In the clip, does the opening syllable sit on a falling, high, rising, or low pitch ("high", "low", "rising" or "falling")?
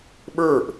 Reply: falling